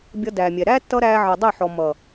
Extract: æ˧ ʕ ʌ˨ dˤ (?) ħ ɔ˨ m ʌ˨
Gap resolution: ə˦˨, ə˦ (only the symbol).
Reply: ə˦˨